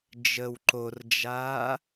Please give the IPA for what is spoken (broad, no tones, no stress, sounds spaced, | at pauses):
d͡ʒ ə w ǃ o r d͡ʒ aː